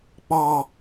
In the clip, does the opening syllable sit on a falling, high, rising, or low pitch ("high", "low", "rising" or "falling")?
low